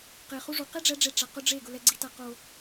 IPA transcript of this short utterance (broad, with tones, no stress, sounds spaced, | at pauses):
q e˨ χ u˦ ʐ u˨ q e˦ ɖ͡ʐ ɛ˨˦ ɖ͡ʐ e˨ ʈ͡ʂ a˨ q ʊ˦ ɖ͡ʐ e˦˨ ɡ ʊ˦ l ɛ˦ ɡ͡ǀ i˦ t a˦ q o˦